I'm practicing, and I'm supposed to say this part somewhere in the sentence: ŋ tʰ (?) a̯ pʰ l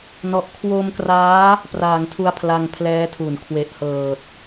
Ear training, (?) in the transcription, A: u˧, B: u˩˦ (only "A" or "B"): A